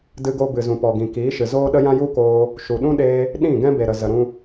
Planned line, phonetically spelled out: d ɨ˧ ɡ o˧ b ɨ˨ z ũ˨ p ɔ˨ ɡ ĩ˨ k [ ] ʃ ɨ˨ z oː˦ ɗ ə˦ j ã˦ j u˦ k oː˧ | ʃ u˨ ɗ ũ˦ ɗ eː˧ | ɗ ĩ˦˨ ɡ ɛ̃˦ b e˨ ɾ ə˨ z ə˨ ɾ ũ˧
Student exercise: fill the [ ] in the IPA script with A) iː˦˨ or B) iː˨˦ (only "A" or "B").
B